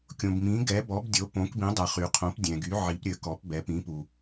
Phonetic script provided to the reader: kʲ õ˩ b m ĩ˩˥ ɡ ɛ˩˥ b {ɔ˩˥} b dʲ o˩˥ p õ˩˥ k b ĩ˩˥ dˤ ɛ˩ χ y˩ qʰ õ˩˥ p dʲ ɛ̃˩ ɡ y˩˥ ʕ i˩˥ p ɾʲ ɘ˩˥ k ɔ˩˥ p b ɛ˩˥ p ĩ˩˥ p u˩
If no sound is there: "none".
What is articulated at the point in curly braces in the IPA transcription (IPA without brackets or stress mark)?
ɔ˩˥